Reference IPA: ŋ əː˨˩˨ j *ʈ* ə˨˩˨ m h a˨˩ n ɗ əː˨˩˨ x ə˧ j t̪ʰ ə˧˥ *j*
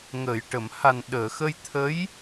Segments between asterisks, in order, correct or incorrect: correct, correct

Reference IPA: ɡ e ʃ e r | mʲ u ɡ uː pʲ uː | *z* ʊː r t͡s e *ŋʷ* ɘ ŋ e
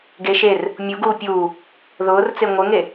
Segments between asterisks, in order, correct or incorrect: incorrect: ð, correct

